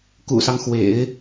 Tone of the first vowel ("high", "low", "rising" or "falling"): low